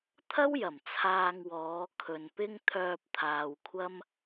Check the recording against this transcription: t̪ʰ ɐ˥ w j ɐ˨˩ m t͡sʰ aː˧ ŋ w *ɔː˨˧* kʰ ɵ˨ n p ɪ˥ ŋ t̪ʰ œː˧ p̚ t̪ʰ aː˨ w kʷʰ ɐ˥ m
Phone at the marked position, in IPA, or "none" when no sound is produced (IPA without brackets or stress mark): ɔː˨˧